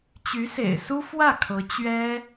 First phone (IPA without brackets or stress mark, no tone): t͡ɕ